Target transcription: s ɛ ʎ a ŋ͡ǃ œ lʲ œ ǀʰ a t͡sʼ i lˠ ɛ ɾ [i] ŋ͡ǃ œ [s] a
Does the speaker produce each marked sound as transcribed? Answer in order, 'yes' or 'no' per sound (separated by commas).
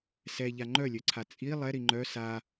yes, yes